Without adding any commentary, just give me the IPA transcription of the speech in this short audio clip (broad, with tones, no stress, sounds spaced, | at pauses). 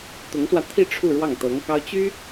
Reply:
t̪ ʊ˧˥ ŋ s w ä˧ t̪ʰ i˥˧ ʈ͡ʂʰ u˥˧ ɻ w ɑ˥˩ ŋ t̪ ɤ˧˥ ŋ k ɑ˥ ʊ̯ t͡ɕ y˥